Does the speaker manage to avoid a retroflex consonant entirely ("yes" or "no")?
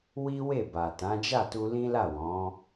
yes